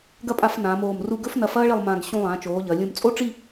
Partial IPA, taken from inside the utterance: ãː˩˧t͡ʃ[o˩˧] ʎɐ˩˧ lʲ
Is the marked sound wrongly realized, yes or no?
yes